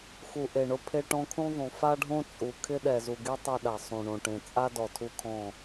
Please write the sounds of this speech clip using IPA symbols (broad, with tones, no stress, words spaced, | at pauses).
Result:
xu˨ʔe˨ ɳʊ˦ pʰe˦ʈɔ̃˦ kʰũ˦ðˤũ˨ fa˦ɖʱõ˦t͡sʼu˨ kʰɪ˦ɗɛ˨zu˨ɡe˦ tˤɛ˦ɗa˨ sˤũ˨ ɳõ˨ʈẽ˨ t͡sʼa˦dɔ˨ tʰu˦kʰɔ̃˦˨